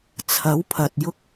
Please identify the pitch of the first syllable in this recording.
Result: rising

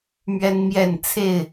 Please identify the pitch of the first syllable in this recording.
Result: high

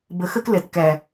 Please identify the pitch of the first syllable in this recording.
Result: low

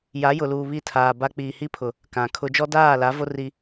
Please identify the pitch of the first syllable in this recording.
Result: rising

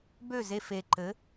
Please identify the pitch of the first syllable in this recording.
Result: falling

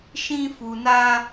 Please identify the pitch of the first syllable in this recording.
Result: high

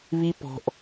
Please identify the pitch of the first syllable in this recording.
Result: high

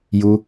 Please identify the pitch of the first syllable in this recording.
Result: low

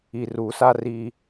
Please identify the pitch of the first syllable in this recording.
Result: low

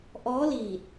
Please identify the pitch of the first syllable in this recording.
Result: rising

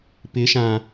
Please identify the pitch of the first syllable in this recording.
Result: rising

